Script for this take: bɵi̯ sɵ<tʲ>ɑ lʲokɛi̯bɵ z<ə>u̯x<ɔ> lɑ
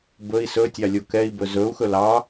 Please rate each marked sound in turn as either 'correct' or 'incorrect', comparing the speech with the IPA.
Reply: correct, incorrect: ɵ, incorrect: ɵ

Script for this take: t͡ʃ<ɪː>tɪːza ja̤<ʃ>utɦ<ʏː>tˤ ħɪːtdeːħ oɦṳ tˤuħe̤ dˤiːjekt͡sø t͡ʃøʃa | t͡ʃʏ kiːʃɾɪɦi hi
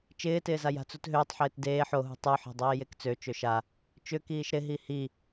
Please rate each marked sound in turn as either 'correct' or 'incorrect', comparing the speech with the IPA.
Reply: correct, incorrect: t͡s, correct

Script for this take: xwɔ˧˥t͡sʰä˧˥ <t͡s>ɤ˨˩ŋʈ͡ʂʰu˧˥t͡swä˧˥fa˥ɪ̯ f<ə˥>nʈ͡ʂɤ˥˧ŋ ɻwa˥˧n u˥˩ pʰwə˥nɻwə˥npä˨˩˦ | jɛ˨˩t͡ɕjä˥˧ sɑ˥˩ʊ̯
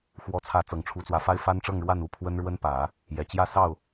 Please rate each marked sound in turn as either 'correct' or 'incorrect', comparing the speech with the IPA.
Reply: correct, incorrect: a˥

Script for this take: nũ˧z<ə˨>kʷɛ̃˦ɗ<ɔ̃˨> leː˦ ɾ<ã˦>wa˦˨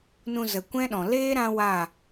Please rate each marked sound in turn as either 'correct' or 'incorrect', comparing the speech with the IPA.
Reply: correct, correct, correct

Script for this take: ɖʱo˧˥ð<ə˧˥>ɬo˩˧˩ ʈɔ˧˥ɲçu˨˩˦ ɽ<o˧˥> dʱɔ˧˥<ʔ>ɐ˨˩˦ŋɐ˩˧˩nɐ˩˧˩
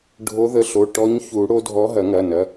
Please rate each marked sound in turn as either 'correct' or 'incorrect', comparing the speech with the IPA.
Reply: correct, correct, incorrect: ɦ

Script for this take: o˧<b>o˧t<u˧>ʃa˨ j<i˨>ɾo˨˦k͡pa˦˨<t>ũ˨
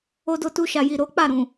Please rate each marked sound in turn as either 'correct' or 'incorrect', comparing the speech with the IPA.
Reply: incorrect: d, correct, correct, incorrect: ɾ

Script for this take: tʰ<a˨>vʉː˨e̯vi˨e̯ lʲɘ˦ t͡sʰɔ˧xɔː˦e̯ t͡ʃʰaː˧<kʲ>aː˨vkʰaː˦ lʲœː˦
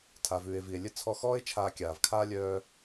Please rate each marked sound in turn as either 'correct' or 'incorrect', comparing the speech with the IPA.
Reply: correct, correct

